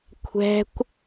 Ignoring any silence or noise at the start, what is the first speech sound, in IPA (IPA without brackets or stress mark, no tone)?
kʷʰ